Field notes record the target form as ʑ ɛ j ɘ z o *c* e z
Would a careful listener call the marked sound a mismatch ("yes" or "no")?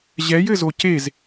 no